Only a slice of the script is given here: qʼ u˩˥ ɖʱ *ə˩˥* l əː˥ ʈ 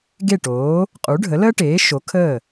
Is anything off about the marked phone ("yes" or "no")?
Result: no